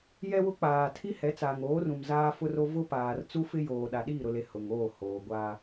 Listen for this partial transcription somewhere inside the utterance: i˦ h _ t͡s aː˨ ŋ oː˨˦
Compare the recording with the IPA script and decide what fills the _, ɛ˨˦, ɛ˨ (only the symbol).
ɛ˨˦